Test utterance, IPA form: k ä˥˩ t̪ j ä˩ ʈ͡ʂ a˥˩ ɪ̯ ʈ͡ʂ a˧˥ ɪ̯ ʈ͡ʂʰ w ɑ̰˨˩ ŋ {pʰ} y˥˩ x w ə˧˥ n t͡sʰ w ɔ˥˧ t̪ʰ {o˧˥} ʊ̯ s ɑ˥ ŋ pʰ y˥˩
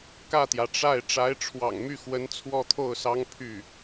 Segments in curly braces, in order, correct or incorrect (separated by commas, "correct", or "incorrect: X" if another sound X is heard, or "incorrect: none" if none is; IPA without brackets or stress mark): incorrect: m, incorrect: o˥˩